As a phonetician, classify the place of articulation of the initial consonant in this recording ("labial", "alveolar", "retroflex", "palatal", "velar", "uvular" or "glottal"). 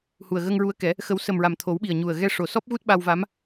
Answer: glottal